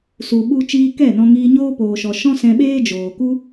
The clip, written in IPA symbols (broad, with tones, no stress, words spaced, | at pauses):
su˨ɓu˧ t͡ʃiː˧ kɛ˦˨nɔ̃˧ŋiː˧ɲoː˦ poː˨ʃɔ˨ ʃɔ̃˦sɛ̃˧ɓeː˦ d͡ʒoː˨ku˦